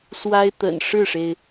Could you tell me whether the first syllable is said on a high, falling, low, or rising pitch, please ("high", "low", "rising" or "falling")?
high